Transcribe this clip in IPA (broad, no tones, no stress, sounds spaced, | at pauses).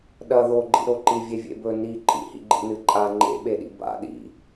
ɗ ɐ ð o ɡ͡ǃ ḭ ɾ o ǃ i vʲ e vʲ ḛ b ɵ n i ǃʼ ḭ h ḭ ɡ͡ǃ ḭ n ɨ ǃʼ a ŋ͡ǃ ḛ ɓ e ɗ ḭ b a̰ ɗ ḭ